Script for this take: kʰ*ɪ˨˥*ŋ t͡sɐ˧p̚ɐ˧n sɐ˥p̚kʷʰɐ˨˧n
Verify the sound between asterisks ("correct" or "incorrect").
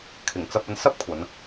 incorrect